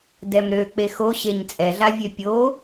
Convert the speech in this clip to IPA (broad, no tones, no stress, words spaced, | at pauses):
dɛmɾø k͡pexoɕeɲ t͡sʼɛɮavʲø pʲo